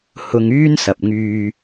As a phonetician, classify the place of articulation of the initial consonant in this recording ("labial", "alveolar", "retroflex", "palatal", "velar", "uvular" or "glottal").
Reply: glottal